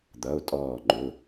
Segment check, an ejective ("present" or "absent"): present